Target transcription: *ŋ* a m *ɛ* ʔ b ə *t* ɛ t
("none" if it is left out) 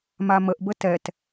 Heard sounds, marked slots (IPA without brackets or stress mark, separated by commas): m, ə, t